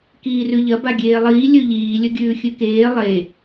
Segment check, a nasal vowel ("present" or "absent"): absent